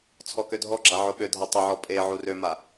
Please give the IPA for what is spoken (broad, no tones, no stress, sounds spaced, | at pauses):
t͡sʰ ɔ k ø dʱ ɔ ɡ͡ǁ a ʕ o ɓ ø dʱ a tˤ o ʕ ɔ pʼ e ʕ u r ø m a